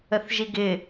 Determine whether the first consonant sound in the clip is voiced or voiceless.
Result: voiceless